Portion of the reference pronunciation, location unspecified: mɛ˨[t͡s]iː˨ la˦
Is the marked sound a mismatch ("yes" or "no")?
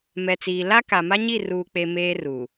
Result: no